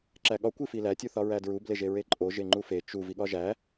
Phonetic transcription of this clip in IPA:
ǁ æ ɠ ɒ kʷ i f i l æ tʲ u θ ɒ ɹ æ d ɹ u b l e ʒ e ɹ e ǃʼ o ʒ e ŋ͡ǃ u f e t͡ʃ u v i ɠ ɒ ʒ æ

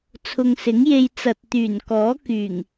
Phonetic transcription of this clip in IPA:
t͡sʰ ʊ˨ ŋ s ɪ˨˥ ŋ j e˧ j t͡s ɐ˨ t̚ t̪ yː˨˩ n k ɔː˨˥ k yː˨˩ ŋ

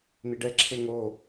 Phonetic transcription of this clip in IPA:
n̪ i ɖ ɛ ǁʰ e ŋ o

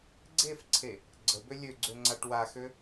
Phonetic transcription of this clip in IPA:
ɡ͡ǀ e f ǀʰ e | ɡ͡ǀ ə b ø lʲ ø ɡ͡ǀ ø ŋ͡ǀ a ʈ w a x ø

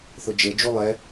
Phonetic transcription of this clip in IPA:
θ ʊ d͡ʒ e d͡ʒ u lˠ ɛ

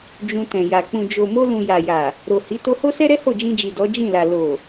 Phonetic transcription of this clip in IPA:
d͡ʒ ũ˧ t ɛ̃˨ j a˨ k͡p ũ˨ d͡ʒ o˨ m o˧ l ũ˨ j a˨ j a˨ | ɾ o˨ h i˨˦ t o˧ h o˦ s ɛ˦ ɾ ɛ˦ h o˦˨ d͡ʒ ĩ˧ d͡ʒ i˨ d ɔ˨˦ d͡ʒ ĩ˦˨ l a˨ l o˨

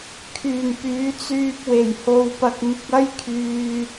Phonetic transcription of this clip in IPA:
kʰ yː˨˩ m p yː˨˧ t͡s yː˧ p̚ w e˨˩ j h o˧ w p ɐ˧ k̚ ŋ ɪ˧ k̚ ɐ˥ j kʰ yː˧

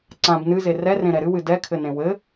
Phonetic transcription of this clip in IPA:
ǀ ã b n ɨ z e r ɛ r ẽ ɾ ɛ ɾ ɨ w ɨ d ɛ kʰ ɘ n ẽ w ɘ

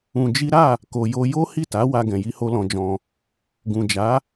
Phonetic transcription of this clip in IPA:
ũ˧ d͡ʒ i˦ ɾ a˦˨ | k o˨ j o˧ j o˦ h i˦˨ t a˨˦ w a˧ ɡ ɛ̃˨ j i˧ h o˧ l ɔ̃˧ d͡ʒ ɔ̃˧ | ɡ ũ˨ d͡ʒ a˨˦

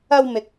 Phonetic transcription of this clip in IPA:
ɐ˧ w m ɪ˨ k̚

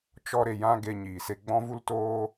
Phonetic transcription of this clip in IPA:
t͡ʃ ɔ˦ ɾ e˧ j ã˦ ɡ e˧ ɲ iː˨ s e˧ ɡ͡b ɔ̃˦ v u˦ l t oː˦

